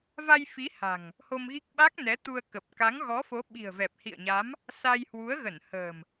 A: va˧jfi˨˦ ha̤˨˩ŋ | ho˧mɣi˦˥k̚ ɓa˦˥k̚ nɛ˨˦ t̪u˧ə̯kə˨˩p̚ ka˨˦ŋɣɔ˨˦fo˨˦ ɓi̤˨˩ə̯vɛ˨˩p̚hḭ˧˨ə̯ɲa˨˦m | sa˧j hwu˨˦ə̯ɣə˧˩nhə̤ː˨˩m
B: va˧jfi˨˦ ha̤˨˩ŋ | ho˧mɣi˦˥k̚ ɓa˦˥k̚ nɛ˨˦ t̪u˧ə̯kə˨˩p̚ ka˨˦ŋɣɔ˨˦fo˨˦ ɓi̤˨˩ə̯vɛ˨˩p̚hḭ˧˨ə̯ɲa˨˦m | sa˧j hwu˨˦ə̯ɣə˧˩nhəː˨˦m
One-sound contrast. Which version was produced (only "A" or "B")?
A